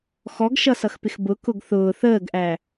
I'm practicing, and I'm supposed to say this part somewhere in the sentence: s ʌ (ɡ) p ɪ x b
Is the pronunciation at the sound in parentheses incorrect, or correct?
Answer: incorrect: x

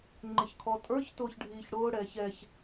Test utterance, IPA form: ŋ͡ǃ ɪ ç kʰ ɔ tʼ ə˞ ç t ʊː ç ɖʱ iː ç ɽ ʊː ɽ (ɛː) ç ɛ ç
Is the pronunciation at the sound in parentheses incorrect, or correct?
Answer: correct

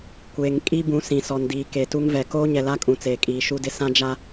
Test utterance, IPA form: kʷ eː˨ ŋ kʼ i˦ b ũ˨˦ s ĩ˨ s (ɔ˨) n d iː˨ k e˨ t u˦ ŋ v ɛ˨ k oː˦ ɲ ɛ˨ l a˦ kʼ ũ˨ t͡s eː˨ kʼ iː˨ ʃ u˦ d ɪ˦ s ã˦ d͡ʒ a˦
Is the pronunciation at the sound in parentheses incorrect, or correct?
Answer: correct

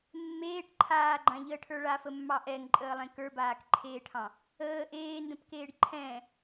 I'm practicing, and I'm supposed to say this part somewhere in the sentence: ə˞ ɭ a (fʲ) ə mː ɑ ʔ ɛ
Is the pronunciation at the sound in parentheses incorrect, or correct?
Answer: incorrect: f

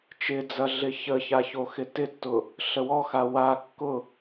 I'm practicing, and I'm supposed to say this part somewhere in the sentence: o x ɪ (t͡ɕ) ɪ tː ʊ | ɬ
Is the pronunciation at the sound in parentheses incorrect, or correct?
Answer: incorrect: t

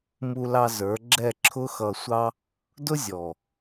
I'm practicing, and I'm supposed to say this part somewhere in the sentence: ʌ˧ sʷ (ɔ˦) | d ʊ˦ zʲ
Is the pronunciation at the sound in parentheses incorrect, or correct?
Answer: incorrect: ɑ˦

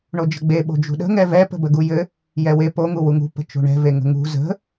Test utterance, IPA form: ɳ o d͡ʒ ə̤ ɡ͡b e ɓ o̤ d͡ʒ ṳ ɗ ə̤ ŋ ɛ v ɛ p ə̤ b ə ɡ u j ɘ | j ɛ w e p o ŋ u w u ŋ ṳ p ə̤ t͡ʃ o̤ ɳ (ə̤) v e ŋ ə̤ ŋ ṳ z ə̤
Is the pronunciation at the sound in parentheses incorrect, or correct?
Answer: incorrect: ɛ̤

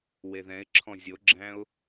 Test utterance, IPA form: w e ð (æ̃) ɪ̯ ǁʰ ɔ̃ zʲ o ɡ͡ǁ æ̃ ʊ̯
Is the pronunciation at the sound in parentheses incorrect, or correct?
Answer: incorrect: ɛ̃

